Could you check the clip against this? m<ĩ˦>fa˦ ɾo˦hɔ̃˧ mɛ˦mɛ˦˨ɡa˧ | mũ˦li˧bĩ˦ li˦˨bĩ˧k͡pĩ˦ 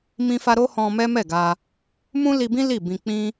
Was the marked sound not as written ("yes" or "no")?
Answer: no